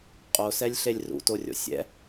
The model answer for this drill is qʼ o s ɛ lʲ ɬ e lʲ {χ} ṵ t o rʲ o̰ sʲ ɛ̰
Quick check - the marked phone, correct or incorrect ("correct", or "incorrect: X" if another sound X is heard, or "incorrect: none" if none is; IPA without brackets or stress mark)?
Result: incorrect: r